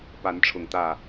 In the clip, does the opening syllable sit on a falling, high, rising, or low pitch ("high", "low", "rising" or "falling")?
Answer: rising